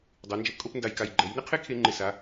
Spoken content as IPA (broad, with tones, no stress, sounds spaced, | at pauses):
dˤ e˩˧ n d͡ʒ ɛ˧ p kʼ o˥ p n d a˧˩ j k a˧˩ j ɡ͡ǃ ɛ˩˧ j n ɪ˥ qʰ e˥ kʰ e˧ ŋ͡ǃ ɪ˧˩ s a˩˧